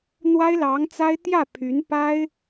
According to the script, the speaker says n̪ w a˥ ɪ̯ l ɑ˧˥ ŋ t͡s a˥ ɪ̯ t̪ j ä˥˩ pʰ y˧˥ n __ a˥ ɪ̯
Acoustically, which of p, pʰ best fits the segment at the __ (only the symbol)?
p